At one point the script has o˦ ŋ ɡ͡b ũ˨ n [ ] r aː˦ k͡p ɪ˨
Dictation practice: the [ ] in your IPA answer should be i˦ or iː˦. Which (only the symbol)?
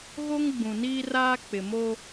iː˦